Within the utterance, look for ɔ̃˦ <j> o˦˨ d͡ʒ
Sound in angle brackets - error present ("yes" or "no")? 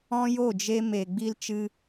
no